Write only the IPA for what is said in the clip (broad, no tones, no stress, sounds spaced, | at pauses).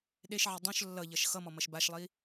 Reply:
ɗ e ʃ ʕ i dˤ õ ʃ lː ʌ ʎ ʌ ʃ x ʌ m ɔ m ʌ ʃ b a ʃ lˠ i